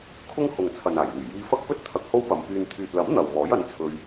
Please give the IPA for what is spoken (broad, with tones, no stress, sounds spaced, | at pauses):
kʰ ʊ˥ ŋ h ʊ˨ ŋ t͡sʰ ɐ˨ n aː˨˩ j l yː˨˩ j iː˧ f ɐ˥ k̚ p ɵ˥ t̚ t̪ʰ ɐ˧ k̚ h o˥ w p ɐ˨˧ m p yː˧ n t̪ʰ yː˨ t̚ l ɐ˨˥ m n̪ ɐ˨ w m ɔː˨˥ j ɐ˨˥ n t͡sʰ ɵ˧ ɥ